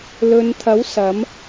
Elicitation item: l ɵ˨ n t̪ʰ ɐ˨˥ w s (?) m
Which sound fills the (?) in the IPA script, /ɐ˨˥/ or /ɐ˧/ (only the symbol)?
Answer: ɐ˨˥